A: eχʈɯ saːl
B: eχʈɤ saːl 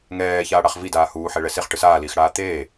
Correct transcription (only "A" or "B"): A